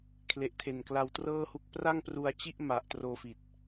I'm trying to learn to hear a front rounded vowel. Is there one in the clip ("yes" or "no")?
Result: no